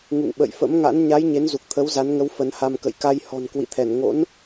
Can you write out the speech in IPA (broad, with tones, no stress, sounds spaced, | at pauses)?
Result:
ŋ ṵ˧˨ ŋ ɓ ə̰˧˨ j f ə̰˧˥ m ŋ a̰˧˥ n ɲ a˨˦ j ɲ e˨˦ n z u˨˩ k̚ t̪ʰ ə˨˦ w z a˨˦ n ŋ ə˨˦ w f ə˨˦ n h a˧ m k ə̰˧˨ j k a˧ j h ɔ̤˨˩ n k w ḭ˧˨ t̪ʰ ɛ˧˩ n ŋ o̰˧˥ n